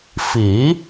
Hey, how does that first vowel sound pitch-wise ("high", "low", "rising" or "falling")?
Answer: rising